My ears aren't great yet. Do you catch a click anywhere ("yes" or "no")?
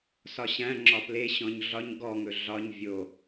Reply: yes